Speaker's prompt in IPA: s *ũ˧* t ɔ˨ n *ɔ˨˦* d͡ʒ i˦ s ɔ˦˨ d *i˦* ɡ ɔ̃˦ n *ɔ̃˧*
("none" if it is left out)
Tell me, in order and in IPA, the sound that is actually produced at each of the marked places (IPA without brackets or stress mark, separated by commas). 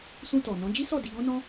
ũ˧, ɔ̃˨˦, i˧, ɔ̃˦